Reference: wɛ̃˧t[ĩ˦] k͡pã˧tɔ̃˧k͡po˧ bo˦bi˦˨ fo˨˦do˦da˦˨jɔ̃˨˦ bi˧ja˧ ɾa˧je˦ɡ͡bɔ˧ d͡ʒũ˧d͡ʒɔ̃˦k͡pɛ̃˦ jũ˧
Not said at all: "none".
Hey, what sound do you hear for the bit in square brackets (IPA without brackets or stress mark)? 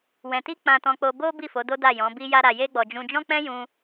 i˦